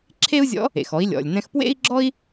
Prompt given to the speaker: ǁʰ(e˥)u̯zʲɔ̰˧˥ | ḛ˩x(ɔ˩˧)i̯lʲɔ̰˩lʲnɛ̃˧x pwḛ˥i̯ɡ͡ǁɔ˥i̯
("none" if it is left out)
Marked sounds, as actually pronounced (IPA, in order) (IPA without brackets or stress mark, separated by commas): e˥, ɔ˩˧